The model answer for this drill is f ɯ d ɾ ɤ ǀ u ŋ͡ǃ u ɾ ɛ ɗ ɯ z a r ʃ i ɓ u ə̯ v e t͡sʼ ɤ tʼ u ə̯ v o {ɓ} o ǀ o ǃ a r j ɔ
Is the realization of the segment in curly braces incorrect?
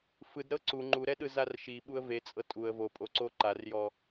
yes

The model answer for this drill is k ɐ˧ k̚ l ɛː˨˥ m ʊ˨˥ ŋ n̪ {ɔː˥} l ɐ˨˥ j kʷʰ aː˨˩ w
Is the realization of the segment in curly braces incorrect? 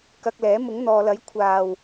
yes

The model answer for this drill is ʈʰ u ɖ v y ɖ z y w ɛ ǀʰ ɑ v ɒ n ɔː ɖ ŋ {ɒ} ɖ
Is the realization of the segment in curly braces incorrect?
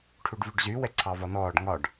no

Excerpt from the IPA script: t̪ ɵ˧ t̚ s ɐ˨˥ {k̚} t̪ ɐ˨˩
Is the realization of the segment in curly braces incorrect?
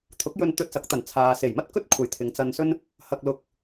no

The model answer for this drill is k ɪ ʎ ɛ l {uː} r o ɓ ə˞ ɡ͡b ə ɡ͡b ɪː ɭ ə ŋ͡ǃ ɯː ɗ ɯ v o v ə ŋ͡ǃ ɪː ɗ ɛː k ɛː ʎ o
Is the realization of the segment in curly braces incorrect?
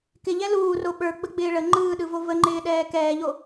no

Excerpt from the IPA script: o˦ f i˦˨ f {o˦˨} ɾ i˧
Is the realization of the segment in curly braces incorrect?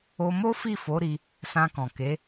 yes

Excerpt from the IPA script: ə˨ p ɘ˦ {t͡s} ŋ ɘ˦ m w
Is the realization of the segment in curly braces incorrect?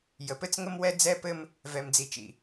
no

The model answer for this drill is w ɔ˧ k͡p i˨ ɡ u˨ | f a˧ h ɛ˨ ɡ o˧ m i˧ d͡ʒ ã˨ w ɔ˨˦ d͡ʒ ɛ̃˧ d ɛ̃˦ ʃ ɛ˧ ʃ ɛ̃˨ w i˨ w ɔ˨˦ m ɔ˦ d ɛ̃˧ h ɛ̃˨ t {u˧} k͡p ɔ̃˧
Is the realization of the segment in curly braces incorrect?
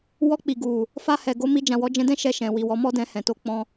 yes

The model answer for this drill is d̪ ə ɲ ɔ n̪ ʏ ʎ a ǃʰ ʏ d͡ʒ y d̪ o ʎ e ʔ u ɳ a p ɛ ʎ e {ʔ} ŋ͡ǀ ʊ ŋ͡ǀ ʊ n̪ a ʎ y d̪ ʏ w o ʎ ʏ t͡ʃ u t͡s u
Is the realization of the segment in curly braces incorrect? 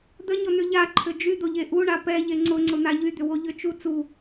yes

